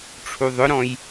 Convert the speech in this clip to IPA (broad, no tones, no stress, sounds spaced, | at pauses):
ʈ͡ʂʰ u ðˤ ʊ ɾ ɔ̃ j